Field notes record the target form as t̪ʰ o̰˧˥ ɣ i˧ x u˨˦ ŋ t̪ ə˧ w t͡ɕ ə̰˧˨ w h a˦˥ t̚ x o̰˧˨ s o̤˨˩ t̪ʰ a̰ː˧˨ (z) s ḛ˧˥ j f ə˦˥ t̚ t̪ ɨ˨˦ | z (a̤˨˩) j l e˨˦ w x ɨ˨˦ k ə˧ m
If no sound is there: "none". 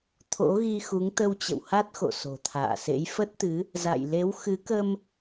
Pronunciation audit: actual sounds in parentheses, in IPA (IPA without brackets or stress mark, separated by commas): none, a̰˧˨